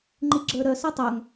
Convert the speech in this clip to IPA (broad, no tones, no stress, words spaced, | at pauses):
ŋ͡ǃiɡ͡ǁə˞ɾœ sɛtˤœŋ